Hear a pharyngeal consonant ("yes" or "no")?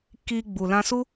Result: no